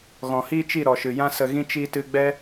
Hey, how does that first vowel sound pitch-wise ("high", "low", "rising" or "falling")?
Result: low